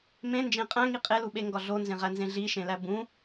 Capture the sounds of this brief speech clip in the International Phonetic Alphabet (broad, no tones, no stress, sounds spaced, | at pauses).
m ẽ n d͡ʒ ẽ qʼ æ̃ ŋ i qʼ e l u ɓ e ŋ ɡ ɒ ɮ o n z ẽ ʁ æ n z ẽ ɮ i ʃ ẽ l æ b ũ